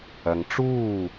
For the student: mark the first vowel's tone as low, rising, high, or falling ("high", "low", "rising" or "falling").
low